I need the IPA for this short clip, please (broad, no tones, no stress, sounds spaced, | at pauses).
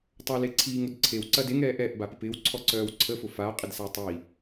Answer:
tˤ a l e ǀʰ iː ŋ ʊ d ǀʰ e w ǀ ɐ d e ŋ ɛː ʔ ɛ ʔ b a p ɪ p ɪː w ǀʰ ɔ ǀ œː w ǀʰ ə f ʊ f a qʼ ɪ d s a tˤ i